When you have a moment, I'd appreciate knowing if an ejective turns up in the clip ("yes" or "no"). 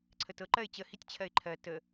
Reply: no